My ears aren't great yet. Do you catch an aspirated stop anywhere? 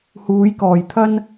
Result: yes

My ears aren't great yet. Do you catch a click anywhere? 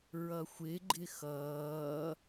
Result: yes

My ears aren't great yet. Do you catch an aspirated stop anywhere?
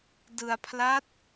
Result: yes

